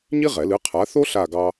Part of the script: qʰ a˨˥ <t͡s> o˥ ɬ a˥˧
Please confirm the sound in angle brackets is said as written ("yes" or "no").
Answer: no